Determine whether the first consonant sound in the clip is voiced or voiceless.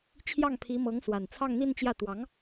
voiceless